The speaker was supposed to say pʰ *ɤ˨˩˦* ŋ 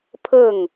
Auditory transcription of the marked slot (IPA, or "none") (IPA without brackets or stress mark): ɤ˥˩